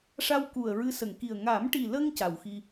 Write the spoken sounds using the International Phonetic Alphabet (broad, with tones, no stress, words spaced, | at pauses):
ʂa˧wku˨˩ə̯ ɹɨ˧˥sə˨˩˨ŋki˨˩ə̯ ŋa˨˩˦mʈi˨˩lə˧ŋ ca˨˩˨wxi˧